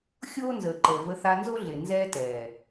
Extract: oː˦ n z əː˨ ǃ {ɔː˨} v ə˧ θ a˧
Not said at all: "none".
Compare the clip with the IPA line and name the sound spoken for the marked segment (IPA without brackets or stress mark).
əː˨